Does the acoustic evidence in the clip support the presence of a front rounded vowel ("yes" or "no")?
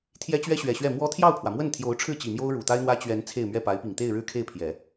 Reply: no